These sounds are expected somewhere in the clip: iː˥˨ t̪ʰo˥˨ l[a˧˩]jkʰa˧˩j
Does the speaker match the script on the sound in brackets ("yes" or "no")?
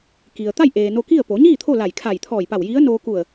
yes